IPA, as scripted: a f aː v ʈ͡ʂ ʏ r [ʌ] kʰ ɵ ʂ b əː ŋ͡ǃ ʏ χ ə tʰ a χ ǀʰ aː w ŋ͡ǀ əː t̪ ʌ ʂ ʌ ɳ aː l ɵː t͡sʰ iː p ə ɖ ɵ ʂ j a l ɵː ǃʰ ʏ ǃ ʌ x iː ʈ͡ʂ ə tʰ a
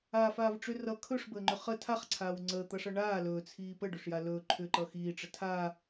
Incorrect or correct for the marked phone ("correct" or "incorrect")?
correct